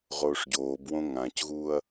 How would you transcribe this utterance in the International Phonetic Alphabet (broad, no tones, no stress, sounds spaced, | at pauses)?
ʁ oː ʂ ɟ oː b w õ ŋ ã c ɣ uː ɐ̯